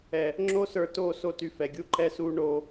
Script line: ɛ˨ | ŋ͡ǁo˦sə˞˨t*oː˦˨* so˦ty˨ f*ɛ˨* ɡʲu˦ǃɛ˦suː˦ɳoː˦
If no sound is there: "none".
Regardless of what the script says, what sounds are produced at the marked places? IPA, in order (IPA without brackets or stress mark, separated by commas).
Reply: oː˦˨, ɛ˨